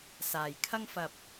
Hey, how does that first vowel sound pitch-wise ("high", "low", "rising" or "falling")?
low